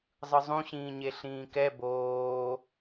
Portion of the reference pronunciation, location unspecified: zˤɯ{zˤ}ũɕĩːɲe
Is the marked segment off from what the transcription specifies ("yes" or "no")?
no